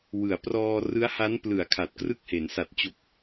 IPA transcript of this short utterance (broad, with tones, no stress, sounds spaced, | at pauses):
w ɯ˩˦ a̯ p r ɔː˧ r ɯ˦˥ a̯ h a˦˥ n p l ɯ˩˦ a̯ kʰ a˨˩ t̚ k r ɯ˥˩ k̚ h e˩˦ n s a˨˩ t̚ t͡ɕ o˨˩ k̚